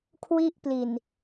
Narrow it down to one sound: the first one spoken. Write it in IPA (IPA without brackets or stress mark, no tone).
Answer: kʰ